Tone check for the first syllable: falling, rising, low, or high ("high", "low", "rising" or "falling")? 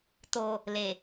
low